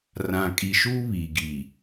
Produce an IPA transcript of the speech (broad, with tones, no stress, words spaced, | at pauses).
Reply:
rã˨kʼi˨ʃuː˦ βiː˨ɡiː˨